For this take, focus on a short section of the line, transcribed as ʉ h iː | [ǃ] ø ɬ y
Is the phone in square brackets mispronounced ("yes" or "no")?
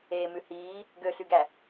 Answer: yes